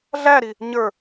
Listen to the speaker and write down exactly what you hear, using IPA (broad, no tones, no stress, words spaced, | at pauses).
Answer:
ɮæɾi | ɲə˞